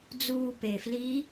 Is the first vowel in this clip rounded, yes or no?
yes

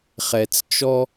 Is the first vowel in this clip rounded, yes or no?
no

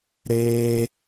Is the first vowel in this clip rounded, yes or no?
no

